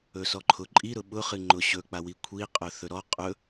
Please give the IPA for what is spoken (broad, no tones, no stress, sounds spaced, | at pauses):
ɵ s ɔ ǃʰ ʊ ǃʼ i ɾ ʊ ɓ ʊ χ ɨ ŋ͡ǃ ʊ ɕ ɵ k͡p a w i kʷʰ i qʼ ɵ θ ɵ ɾ ɔ qʼ ɵ